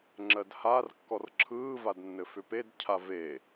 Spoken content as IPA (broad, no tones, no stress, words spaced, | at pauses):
ŋ͡ǁɜdhar kːɔrǁʰɯː vadnːɘfʏped cʰave